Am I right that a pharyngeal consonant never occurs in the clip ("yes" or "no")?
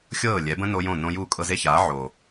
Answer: no